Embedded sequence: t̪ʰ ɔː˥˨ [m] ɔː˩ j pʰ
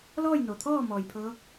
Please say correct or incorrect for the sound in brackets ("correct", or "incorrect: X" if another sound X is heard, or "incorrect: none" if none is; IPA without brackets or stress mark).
correct